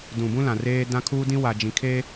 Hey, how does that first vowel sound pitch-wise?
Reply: low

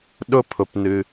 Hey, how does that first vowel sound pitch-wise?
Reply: high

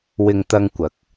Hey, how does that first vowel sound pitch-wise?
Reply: low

